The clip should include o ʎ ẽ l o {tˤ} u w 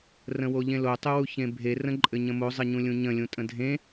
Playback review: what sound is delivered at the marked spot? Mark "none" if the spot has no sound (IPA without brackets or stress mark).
tˤ